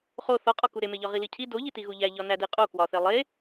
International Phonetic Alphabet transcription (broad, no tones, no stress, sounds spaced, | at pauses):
χ o θ ɒ qʼ ɒ k u ɾ e m e ʎ ɒ ʁ i l i cʰ i d o ʎ i t i ɣ u ʎ æ ʎ ɒ n æ d e qʼ o k w ɒ θ e lˠ e